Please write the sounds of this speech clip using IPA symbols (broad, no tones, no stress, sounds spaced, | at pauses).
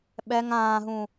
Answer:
ɓ ɛ ŋ ãː ɦ ũ